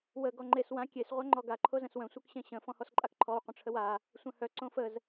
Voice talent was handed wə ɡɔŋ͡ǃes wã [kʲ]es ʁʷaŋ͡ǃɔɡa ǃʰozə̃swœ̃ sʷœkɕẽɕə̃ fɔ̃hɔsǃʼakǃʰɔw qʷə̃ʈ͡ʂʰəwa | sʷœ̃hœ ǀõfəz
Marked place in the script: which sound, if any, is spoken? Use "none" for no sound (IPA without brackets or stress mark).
kʲ